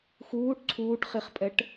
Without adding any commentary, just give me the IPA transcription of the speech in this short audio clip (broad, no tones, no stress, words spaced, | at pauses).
xuːʈ ǀʰuːʈχiχpʼɛʈ